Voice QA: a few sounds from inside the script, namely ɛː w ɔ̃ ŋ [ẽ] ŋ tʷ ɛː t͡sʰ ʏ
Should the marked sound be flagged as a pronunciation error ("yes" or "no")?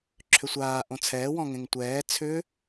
no